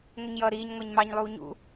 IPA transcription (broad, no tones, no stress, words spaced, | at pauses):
ŋʷiɲjʌːɾiːɲŋʷæɲ mɑɲlˠuː ɲṵ